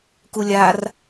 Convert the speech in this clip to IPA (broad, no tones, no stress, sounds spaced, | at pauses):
k u lʲ a r